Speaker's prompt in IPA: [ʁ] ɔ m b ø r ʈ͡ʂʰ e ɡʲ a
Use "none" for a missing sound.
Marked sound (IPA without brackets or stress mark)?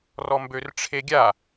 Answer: r